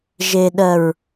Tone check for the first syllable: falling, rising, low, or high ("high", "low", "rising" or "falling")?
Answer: low